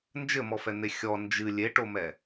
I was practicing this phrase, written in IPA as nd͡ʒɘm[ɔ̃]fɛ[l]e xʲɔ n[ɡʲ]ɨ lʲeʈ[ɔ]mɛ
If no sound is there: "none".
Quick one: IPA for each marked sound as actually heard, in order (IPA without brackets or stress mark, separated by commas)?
ɔ, n̪, d͡ʒ, o